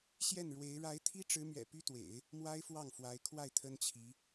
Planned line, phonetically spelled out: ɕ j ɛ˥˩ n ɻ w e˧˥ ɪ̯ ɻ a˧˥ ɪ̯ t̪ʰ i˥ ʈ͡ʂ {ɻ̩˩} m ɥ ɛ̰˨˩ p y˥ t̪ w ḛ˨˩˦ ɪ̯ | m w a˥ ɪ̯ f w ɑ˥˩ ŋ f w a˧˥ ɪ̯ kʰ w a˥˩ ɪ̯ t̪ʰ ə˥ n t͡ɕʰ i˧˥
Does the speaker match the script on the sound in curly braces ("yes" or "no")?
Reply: no